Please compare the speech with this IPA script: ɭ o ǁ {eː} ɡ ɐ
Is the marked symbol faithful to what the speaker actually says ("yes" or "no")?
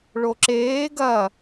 yes